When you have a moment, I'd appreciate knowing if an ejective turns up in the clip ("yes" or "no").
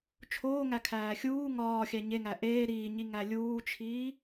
no